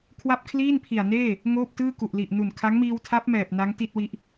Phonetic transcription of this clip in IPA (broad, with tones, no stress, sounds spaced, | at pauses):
kʰ w a˥˩ p̚ kʰ l iː˥˩ n pʰ i˨˩ a̯ n eː˥˩ | ŋ oː˥˩ p̚ t ɯː˥˩ k u˨˩ ʔ l i˨˩ ʔ n u˨˩ n kʰ a˦˥ ŋ m iː˧ w tʰ a˦˥ p̚ m ɛː˨˩ p̚ n a˦˥ ŋ t i˥˩ t̚ w i˦˥ ʔ